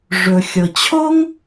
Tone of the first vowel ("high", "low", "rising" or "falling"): low